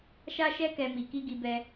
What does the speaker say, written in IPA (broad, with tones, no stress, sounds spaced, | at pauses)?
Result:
ʃ a˧ ʃ ɛ˧ k ɛ˨ m i˨ k i˧ ɡ i˧ b ɛ˧